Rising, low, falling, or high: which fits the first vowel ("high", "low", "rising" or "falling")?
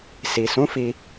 low